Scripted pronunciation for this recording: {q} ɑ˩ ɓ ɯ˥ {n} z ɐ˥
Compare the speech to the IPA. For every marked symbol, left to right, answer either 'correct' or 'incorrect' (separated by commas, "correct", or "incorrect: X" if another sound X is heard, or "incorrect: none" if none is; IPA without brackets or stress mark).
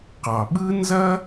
correct, correct